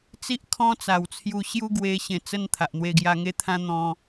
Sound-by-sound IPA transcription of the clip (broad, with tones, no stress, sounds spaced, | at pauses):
t͡s i˦ ʔ kʰ ɔ̃˦ t͡s a˨˩ w t͡sʰ j u˧ ɕ j u˦ ɡ w e˧ ɕ ẽ˨˩ t͡s ə˧ n t̪ʰ a˨ ʔ n̪ w e˧ ɡ j a˧ ŋ e˦ t̪ʰ ã˦ n̪ ɔ̃˧